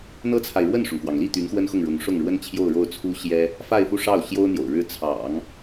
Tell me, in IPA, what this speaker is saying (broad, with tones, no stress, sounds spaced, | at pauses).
n̪ ɤ˥ t͡sʰ a˨ ɪ̯ ɻ w ə˥˩ n ʂ ʊ˩ ŋ k w ɑ˩ ŋ l i˥˩ t̪ y˧˥ n x w ə˥ n x ʊ˥˩ ŋ ɻ ʊ˧˥ ŋ ʂ ʊ˥˩ ŋ ɻ w ə˥ n t͡ɕʰ j o˥˧ ʊ̯ ɻ o˥˩ ʊ̯ t͡sʰ u˥ ɕ j ɛ˥ | f a˥˧ ɪ̯ f u˥˧ ʂ ɑ˥˩ ʊ̯ ɕ j o˥ ʊ̯ n̪ j o̰˨˩ ʊ̯ ɻ ɻ̩˥˩ t͡sʰ ɑ̰˨˩˦ ŋ